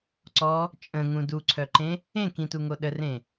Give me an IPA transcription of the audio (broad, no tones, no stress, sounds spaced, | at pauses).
ǀ ɔ | t͡ʃʼ ə̃ ŋ ũ d u ǀʰ œ ǃ ẽ | ẽ k ĩ t u ŋ o ɗ ə r ẽ